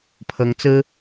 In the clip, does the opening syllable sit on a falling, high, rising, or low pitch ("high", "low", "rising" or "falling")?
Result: rising